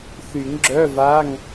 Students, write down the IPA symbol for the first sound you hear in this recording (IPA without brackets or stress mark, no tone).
θ